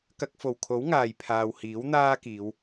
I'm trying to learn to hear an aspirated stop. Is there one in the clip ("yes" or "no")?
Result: yes